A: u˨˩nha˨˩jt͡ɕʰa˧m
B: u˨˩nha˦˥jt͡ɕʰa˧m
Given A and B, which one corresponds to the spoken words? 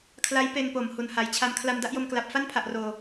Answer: A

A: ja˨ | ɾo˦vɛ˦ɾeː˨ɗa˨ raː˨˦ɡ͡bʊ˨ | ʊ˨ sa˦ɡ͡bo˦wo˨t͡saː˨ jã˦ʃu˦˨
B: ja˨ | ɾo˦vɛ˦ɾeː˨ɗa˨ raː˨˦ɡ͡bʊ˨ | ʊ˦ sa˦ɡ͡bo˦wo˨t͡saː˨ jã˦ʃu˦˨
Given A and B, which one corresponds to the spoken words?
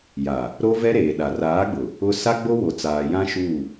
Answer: B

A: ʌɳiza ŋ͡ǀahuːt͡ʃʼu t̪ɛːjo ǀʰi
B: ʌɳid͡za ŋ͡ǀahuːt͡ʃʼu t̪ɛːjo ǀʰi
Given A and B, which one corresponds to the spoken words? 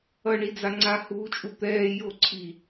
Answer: B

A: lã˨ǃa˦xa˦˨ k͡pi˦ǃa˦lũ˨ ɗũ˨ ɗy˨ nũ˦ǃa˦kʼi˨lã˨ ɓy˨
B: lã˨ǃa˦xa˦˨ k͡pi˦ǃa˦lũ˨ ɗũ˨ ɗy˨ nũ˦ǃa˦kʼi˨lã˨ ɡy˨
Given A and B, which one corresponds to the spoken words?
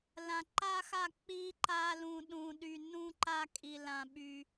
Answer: A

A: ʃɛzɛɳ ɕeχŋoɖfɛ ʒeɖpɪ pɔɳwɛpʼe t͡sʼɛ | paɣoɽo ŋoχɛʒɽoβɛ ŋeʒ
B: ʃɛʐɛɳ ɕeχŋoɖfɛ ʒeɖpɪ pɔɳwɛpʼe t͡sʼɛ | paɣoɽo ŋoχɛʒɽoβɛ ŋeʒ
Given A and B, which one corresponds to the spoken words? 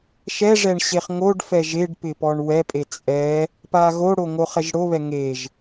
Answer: B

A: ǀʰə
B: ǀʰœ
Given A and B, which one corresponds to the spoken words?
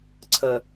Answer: A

